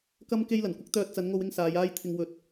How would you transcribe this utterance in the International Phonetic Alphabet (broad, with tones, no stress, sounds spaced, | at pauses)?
k ɐ˥ m k e˥ j l ɐ˨˩ n kʷ ɪ˥ k̚ t̪ œː˧ t̚ t͡s ɐ˨˧ n ŋ o˧ w ɪ˧ ŋ s aː˨˧ j aː˥ j t̪ʰ ɪ˧ ŋ w ɵ˨ t̚